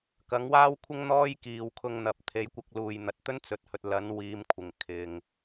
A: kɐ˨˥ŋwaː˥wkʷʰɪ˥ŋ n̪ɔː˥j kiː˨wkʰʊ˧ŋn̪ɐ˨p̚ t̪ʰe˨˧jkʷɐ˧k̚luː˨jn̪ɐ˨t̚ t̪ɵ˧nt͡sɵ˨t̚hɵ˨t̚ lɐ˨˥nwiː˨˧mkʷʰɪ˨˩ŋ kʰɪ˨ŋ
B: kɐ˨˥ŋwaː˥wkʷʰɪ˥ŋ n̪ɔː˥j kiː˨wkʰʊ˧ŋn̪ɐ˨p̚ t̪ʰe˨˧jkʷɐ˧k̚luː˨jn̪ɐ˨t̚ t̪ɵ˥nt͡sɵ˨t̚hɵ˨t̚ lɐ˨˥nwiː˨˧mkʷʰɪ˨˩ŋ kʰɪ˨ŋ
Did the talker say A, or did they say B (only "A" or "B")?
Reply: B